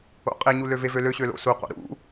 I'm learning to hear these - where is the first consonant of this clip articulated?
uvula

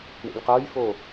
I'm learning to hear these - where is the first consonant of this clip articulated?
retroflex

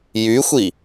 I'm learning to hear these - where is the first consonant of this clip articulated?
palate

